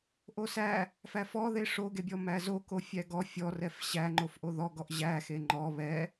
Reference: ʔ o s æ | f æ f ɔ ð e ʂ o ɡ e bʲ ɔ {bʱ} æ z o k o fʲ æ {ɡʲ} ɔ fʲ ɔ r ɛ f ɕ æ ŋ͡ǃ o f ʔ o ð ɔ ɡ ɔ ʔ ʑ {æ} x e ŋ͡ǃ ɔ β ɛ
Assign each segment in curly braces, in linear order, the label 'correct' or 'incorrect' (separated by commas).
incorrect, incorrect, correct